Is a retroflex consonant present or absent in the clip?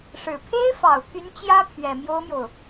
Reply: present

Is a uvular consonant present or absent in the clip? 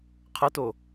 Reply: present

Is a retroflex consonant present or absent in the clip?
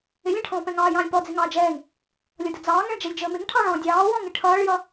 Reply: present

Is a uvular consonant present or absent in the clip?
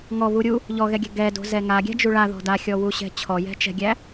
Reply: absent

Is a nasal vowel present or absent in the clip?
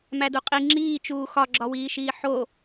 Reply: absent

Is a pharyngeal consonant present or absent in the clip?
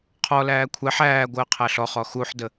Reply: present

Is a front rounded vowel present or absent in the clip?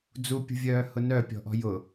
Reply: present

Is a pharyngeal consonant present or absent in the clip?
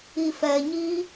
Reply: absent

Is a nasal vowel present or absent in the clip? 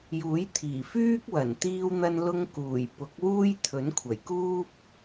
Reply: absent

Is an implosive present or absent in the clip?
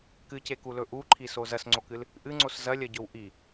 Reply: absent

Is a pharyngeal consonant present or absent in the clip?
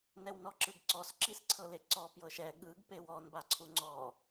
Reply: absent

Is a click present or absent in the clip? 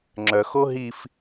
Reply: present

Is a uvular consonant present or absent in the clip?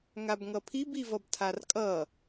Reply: absent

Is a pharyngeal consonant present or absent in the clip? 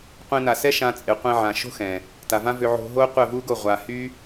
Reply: present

